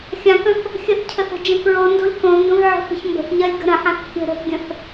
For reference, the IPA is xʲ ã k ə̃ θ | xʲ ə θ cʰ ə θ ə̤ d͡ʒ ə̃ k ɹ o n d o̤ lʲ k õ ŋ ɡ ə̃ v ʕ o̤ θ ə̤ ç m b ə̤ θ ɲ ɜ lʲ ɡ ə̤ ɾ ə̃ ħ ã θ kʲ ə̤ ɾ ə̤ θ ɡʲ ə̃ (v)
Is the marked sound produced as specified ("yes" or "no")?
no